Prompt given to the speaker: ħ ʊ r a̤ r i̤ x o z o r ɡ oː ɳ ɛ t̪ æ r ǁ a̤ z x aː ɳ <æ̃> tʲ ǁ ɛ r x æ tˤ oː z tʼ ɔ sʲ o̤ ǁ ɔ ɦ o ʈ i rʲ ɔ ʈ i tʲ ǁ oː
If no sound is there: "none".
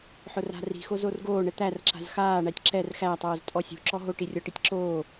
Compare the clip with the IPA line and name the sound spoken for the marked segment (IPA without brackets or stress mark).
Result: æ